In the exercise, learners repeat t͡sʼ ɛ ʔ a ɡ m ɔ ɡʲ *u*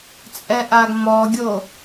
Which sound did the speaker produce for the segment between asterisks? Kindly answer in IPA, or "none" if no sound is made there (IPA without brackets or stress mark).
o